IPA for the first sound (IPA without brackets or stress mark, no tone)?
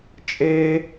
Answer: t͡ʃʼ